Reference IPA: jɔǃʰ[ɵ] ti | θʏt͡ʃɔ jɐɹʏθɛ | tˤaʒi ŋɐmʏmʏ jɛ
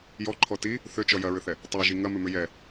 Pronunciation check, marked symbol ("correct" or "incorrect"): incorrect